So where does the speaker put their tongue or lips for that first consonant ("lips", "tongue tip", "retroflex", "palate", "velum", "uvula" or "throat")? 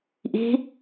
throat